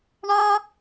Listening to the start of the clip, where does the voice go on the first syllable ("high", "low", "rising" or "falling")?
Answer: high